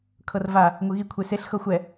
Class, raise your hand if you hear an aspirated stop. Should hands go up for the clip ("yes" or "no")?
yes